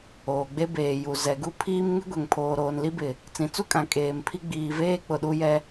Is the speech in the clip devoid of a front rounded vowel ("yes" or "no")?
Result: yes